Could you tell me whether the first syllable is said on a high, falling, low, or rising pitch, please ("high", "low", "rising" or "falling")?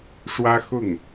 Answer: high